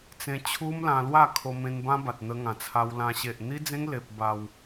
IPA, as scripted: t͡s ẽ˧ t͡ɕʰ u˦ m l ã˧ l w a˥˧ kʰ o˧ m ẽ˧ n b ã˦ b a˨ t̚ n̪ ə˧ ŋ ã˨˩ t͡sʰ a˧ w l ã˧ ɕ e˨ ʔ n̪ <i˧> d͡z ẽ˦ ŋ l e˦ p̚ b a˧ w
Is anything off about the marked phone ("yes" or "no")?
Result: yes